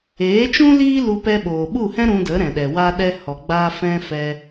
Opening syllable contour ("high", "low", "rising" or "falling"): rising